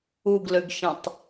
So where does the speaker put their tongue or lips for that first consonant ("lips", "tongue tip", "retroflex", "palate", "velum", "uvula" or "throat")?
velum